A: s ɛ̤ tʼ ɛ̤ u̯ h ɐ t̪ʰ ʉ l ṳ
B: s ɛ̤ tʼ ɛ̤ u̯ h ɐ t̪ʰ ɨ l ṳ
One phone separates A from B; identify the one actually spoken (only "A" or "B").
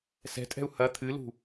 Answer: B